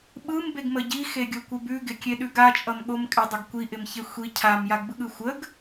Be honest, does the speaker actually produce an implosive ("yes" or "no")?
yes